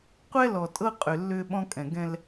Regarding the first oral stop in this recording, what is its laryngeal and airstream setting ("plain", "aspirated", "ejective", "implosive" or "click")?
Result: plain